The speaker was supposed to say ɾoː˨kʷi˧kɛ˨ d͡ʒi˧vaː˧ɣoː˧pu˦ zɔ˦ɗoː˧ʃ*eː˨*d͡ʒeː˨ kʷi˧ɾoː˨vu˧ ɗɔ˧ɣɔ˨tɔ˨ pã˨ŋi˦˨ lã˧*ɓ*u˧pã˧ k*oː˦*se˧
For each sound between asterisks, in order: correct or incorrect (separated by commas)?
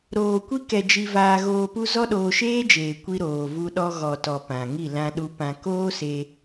incorrect, incorrect, correct